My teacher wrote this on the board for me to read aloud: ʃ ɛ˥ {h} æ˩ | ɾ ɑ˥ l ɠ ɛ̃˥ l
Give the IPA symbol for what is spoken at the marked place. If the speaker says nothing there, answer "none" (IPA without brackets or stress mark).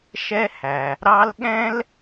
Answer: h